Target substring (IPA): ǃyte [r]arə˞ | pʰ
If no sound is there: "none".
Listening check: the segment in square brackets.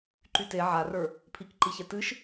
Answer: ʕ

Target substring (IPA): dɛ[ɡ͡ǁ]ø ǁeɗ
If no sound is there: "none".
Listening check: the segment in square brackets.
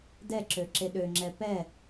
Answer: ǁ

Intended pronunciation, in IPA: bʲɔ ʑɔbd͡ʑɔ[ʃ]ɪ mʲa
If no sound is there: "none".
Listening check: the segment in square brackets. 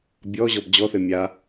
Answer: θ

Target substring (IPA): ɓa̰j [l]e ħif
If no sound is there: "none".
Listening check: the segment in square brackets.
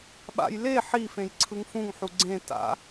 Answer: l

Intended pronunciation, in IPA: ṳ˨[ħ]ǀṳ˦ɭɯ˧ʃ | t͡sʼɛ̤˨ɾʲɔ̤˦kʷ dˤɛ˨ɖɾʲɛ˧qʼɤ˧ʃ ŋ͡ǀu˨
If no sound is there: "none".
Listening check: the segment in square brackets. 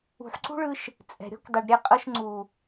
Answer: ħ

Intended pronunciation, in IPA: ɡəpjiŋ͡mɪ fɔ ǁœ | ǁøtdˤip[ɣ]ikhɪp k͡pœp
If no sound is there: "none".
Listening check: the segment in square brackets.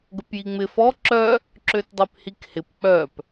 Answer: h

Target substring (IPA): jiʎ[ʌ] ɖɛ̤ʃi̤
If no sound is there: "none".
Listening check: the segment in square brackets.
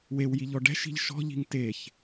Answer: ɔ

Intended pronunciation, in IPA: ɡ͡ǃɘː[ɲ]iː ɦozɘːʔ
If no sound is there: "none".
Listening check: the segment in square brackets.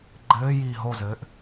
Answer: j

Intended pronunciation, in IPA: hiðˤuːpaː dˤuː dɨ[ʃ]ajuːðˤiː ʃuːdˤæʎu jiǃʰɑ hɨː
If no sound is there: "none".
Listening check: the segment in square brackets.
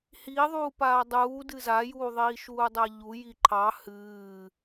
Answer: z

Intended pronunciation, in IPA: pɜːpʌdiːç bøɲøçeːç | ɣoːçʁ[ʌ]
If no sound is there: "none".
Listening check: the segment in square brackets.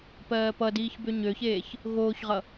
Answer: ʌ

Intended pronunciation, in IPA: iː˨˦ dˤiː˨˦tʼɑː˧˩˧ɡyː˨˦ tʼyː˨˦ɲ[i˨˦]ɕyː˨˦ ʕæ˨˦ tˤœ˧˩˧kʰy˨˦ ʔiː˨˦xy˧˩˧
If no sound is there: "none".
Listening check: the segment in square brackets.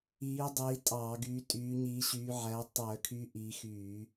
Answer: iː˨˦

